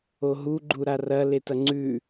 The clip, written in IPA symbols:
o ɦ u ɡ͡ǃ u ɾ a r ɐ l e t ɐ ŋ͡ǀ ʉ

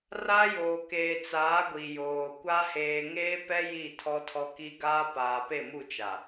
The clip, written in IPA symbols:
r a˦ j oː˨ k eː˨ t͡s aː˨˦ ɡʷ i˨ j oː˨ kʷ a˦ h eː˨ ŋ eː˦ p ɛ˦ j i˦˨ tʰ ɔ˦ tʰ ɔ˦ k i˦ ɡ aː˦ p aː˨ p e˦˨ m u˦˨ t͡ʃ a˨

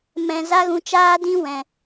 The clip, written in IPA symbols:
m ɛ̃˧ z a˦ ɣ ũ˧ t͡ʃ aː˦ d ĩ˦ w ɛ̃˨

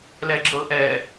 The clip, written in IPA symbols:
l ɛ ɡ͡ǁ ɤ ʔ ɛ

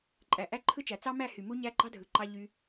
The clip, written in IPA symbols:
ǃʼ æ˨ ʔ æ˦ ǃʰ ɯ˦ t͡ʃ æ˨ t͡s ɑ˦ m æ˦˨ h y˨ m u˦ ɲ æ˦ ɡ͡ǃ ɑ˦ dʱ ɯ˨ ǃ ɑ˧ ʎ y˧

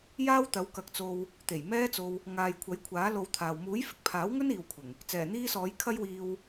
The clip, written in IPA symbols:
j aː˥ w t̪ ɐ˨˥ w k ɐ˨ k̚ t͡s o˧ w | t̪ e˨˩ j m ɛː˥ t͡s o˧ w | ŋ aː˨ j kʷʰ ɐ˨˥ j kʷʰ aː˨˥ l o˧ w t̪ʰ aː˨ w m uː˨˥ j f ɪ˨ k̚ pʰ aː˨˥ w ŋ ɵ˥ n iː˨ w kʷʰ ɪ˨˩ ŋ | t͡s ɛː˨˩ n̪ iː˥ s ɔː˨˥ j kʰ ɐ˥ j w iː˧ w

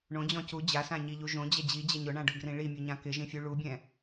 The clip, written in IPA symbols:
ɳ õ d͡ʑ ɔ̃ c u d͡ʑ a s ã ɲ i ʎ u ʒ õ d͡ʑ ɛ d͡ʑ i d͡ʑ ɛ ɲ ʊ ɳ ã ɖ ʊ ɡ r ĩ ɭ i mʲ u ɲ ã k ɪ ʒ ĩ fʲ u ɭ u bʲ ɛ̃

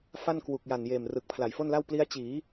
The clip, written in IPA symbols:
f a˥˩ n k w u˨˩ k̚ j a˨˩ n j eː˨˩ m r ɯ˨˩ k̚ pʰ l a˨˩ j f o˥˩ n l a˥˩ w p l i˦˥ a̯ t͡ɕ iː˩˦

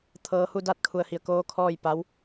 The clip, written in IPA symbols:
t̪ʰ ɤː˧ h u˥˨ d a˥˨ t̚ kʰ u˧˩ ə̯ h i˧˩ ə̯ k oː˧˥ kʰ ɔː˥˨ j p a˧˥ w

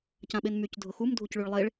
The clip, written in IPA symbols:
c ã ɓ e n m y c dʱ ʊ x u m dʱ u c ɭ y ɭ lˠ e ɭ

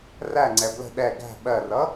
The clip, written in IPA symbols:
r æ ŋ͡ǀ ɛ b l ə̤ ɗ ɛ ɡ æ̤ ɓ ɜ r ʌ

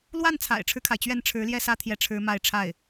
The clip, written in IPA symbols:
l w a˥˩ n t͡sʰ a̰˨˩ ɪ̯ ʈ͡ʂʰ ɻ̩˦ kʰ a˩ ɪ̯ t͡ɕ ɥ ɛ˥˩ n ʈ͡ʂʰ ɻ̩˧˥ l j ɛ˥˧ s ä˥˧ t̪ʰ j ɛ˥˩ ʈ͡ʂʰ ɻ̩˥ m a˥˧ ɪ̯ ʈ͡ʂʰ a˥˩ ɪ̯

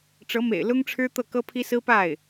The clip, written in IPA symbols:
ʈ͡ʂ ɤ˧˥ m ḛ˨˩ ɪ̯ l ʊ˥ ŋ ʈ͡ʂʰ ɻ̩˥ t̪ ɤ˥˩ k ɤ˥ pʰ i˥ s ɹ̩˥ p a˥˩ ɪ̯

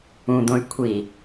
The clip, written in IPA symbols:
ũ d̪ õ y̯ kʷʰ i

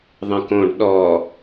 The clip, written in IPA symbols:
ðˤ ə̃ k õ ɖ ɗ ɔ

